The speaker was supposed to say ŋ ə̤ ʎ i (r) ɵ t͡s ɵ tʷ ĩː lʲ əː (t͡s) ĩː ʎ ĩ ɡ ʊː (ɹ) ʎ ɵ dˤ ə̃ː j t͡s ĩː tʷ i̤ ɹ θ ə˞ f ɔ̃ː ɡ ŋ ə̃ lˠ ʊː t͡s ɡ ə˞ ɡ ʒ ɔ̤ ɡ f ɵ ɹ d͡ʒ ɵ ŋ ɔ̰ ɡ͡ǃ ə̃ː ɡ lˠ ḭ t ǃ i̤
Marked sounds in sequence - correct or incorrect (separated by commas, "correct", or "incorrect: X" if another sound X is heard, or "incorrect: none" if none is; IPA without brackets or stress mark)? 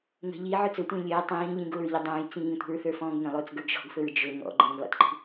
incorrect: ʕ, incorrect: tˤ, correct